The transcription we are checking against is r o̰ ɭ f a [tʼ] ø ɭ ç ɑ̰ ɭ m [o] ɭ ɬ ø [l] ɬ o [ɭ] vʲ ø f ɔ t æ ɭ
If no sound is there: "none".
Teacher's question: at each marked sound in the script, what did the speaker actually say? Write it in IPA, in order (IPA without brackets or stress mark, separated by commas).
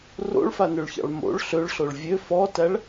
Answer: n, o̰, ɭ, ɭ